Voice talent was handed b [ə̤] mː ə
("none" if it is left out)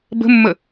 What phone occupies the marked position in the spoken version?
ə̤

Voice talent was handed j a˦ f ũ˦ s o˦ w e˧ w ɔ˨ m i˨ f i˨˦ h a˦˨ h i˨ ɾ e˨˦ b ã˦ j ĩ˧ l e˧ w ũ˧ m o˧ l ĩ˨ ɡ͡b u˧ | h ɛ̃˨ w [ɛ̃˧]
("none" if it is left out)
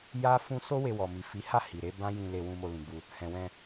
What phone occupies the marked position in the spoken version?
ɛ̃˧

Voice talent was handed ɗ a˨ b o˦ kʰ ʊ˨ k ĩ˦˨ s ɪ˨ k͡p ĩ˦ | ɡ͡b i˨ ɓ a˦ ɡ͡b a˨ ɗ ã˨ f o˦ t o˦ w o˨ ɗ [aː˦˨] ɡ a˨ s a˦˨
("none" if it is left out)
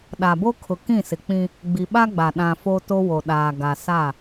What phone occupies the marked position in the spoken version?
aː˨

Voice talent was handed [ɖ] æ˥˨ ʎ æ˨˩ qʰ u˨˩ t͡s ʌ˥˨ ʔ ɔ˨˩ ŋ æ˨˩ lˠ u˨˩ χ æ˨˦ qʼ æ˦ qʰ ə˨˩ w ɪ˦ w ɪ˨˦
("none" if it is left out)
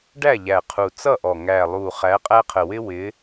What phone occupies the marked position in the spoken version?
ɖ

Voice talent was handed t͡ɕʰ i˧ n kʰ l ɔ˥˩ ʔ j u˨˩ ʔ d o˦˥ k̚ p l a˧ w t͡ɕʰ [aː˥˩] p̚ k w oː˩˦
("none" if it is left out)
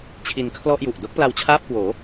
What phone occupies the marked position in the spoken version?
aː˥˩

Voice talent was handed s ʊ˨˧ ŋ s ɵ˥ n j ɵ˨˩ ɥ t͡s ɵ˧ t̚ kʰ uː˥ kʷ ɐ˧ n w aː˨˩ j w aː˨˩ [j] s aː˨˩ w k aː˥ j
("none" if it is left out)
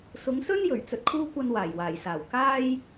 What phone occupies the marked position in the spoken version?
j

